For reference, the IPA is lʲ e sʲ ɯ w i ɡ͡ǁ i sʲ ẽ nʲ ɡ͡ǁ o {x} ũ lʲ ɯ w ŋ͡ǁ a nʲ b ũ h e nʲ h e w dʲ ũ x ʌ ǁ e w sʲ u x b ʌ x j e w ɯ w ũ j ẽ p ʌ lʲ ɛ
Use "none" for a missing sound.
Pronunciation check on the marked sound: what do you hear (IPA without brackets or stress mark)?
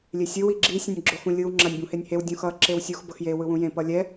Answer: x